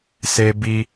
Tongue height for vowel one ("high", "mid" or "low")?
mid